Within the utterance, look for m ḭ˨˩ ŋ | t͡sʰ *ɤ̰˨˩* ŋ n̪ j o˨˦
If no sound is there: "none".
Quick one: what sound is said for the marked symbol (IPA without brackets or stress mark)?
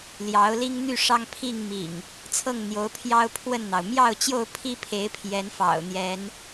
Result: ɤ˥˨